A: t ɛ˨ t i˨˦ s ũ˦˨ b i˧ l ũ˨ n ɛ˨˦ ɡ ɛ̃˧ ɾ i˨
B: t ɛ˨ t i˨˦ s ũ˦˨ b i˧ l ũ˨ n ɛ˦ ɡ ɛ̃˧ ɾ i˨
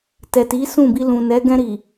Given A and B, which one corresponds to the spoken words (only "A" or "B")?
A